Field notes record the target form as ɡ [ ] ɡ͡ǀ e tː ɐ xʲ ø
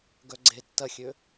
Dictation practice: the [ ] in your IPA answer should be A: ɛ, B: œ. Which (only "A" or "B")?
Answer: B